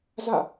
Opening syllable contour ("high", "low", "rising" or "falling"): falling